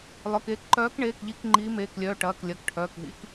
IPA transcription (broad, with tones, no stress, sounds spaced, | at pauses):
lˠ œ˩˧˩ k eː˨˦ k ǃ œː˨˦ k ɳ eː˩˧˩ k ʎ i˨˦ k ŋ͡ǃ iː˨˦ m eː˩˧˩ k lʲ œː˩˧˩ ʈ ɐː˩˧˩ k lʲ ɐ˩˧˩ k ʈʰ œː˩˧˩ k ɦ ḭ˨˦ k